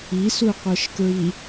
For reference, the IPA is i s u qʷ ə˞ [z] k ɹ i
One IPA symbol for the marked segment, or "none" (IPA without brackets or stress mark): ʃ